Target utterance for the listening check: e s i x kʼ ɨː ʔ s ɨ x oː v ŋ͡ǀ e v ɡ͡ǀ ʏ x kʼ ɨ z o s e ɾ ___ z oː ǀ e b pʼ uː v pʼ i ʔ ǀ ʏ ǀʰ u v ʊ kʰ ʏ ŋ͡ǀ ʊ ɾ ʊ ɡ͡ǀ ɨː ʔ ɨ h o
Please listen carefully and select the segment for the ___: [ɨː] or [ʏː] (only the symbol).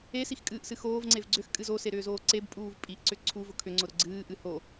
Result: ʏː